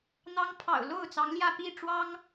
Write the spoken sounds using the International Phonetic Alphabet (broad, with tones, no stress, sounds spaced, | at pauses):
n̪ ɑ˧˥ ŋ pʰ ɑ̰˨˩ ʊ̯ l o˥˩ ʊ̯ t͡s ɑ˧˥ ŋ l j ä˥˧ p i˥˩ ʈ͡ʂ w ɑ˥ ŋ